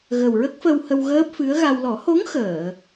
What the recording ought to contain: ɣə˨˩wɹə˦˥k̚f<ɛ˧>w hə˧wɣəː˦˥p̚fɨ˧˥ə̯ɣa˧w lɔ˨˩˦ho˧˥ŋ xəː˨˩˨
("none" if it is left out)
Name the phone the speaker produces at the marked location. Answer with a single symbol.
ə˧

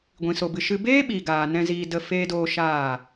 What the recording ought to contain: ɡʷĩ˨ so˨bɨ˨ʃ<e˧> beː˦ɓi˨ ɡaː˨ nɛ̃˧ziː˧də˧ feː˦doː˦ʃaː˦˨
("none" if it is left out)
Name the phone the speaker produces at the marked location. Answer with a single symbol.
ɨ˧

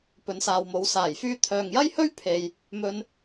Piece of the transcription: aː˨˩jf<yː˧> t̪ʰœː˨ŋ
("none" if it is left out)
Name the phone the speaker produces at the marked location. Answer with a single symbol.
yː˧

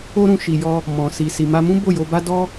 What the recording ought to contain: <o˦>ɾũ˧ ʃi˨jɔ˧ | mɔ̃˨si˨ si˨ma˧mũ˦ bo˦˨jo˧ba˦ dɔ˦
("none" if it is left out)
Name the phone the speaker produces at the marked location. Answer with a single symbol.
o˦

